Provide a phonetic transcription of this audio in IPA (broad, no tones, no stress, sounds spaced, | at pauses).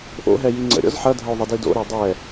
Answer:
ʔ o̰ ɦ ɛ j i ŋ͡ǀ ə̰ ɾʲ ɔ̰ z ħ ɐ dʱ ə o̯ ðˤ ə d i d o̰ ɾ æ dˤ ɛ